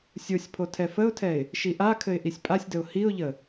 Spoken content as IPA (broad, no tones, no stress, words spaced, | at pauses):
sʲosʲpʰo tʰɛfəʊ̯tʰɛɪ̯ | ʃiʔakʰɘɪ̯ ʔisʲpʼasʲdəʊ̯ hiʊ̯ʎə